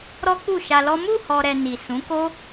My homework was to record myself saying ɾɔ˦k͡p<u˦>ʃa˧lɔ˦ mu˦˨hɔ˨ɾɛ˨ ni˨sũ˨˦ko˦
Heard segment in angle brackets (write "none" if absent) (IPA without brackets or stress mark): u˦˨